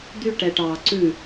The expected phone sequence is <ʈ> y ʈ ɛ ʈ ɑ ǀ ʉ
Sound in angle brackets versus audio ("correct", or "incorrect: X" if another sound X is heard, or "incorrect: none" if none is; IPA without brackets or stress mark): incorrect: d̪